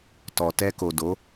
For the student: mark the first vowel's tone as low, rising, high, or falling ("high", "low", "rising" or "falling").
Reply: low